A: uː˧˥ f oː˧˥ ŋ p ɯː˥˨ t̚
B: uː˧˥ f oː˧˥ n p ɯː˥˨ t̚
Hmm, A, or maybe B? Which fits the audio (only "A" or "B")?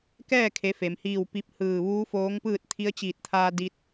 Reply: A